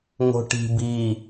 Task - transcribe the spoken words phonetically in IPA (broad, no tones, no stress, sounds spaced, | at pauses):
ŋ o̤ ʈ i̤ b i